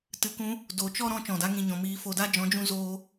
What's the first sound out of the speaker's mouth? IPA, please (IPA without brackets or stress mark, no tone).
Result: t